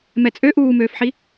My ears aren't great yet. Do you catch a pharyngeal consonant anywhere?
yes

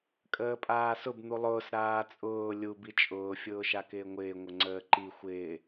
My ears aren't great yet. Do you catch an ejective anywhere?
yes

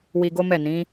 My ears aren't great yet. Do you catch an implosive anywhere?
no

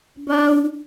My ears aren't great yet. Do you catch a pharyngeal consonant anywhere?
no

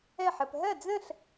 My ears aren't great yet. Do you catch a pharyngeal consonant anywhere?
yes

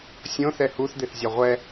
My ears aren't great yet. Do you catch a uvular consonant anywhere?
yes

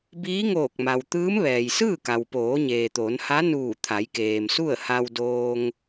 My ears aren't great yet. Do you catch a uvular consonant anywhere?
no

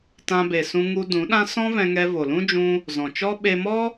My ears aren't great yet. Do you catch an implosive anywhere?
yes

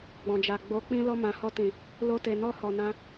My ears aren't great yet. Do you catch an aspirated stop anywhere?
no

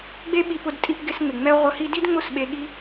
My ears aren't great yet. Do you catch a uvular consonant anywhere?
yes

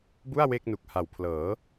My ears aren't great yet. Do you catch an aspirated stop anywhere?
yes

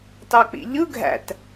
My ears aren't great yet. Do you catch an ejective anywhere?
no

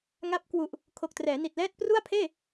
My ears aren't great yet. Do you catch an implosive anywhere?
no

